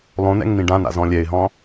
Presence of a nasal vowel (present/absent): present